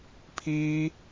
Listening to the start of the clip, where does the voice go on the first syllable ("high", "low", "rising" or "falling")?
high